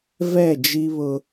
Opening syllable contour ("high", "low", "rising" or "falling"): falling